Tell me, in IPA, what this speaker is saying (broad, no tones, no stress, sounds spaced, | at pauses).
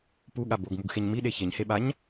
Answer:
p u ɠ a b o ɡ m u ɡ x e ɲ m i ɗ e ç e ɲ h e ɓ a ɲ